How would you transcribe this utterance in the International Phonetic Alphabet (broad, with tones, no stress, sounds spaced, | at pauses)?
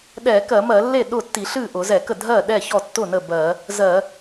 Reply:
ɗ ɛ˧˩˧ k ɜ˧˩˧ m ɜ˧˩˧ lː e˥˩ ɗ ʊ˥˩ tː i˧˩˧ ɬ ɨ˥˩ ʔ ʊ˧˩˧ z ɛ˧˩˧ k ə˥˩ dʱ ɜ˥˩ ɗ ɛ˥˩ ç ɔ˥˩ tː ʊ˥˩ n ə˥˩ b ɜ˧˩˧ | z ɜ˧˩˧